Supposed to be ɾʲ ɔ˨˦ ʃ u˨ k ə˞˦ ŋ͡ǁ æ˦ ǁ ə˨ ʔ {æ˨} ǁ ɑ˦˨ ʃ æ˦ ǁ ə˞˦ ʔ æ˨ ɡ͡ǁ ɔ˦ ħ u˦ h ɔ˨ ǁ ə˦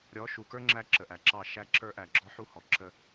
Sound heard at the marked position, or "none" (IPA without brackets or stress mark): æ˨